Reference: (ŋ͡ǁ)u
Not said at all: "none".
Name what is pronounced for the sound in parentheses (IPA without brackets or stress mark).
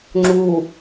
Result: ŋ͡ǁ